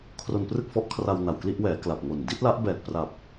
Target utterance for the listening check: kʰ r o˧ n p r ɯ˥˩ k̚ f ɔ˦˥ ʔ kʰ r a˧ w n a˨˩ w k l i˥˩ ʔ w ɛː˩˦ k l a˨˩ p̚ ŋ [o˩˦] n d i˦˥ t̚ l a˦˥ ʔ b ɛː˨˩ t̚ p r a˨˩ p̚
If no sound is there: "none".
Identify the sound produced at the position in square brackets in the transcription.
o˨˩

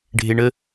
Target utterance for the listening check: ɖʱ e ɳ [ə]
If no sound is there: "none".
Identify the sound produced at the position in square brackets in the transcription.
ə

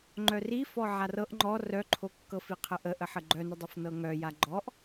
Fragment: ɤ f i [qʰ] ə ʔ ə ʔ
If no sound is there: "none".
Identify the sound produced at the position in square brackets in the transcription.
qʰ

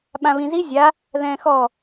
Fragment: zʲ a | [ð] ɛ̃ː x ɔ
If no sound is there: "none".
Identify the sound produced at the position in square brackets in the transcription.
ð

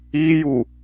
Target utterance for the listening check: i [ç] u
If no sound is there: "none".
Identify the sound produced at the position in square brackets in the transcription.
j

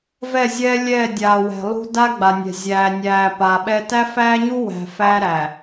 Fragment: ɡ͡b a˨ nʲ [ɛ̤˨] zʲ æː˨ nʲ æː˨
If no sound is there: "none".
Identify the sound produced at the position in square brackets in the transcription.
ɛ̤˨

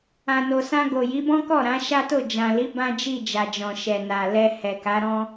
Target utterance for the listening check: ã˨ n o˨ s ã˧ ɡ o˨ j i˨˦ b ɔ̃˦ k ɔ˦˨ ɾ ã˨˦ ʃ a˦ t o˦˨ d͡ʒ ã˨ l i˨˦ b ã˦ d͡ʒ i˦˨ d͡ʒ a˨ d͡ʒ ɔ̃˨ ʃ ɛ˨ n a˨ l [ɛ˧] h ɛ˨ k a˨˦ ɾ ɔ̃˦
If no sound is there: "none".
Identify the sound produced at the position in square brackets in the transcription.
ɛ˧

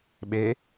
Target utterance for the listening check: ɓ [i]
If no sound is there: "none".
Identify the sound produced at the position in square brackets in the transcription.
e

